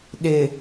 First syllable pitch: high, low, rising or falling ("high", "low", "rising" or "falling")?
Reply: low